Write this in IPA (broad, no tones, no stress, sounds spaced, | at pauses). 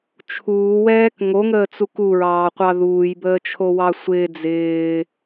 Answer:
t͡ʃʰ uː w ɛː k ŋ o ŋ əː t͡s u k u ɹ ɑː qʷ ɑ ð uː j b əː t͡ʃʰ o w ɑ sʷ ɪː d͡z ɪː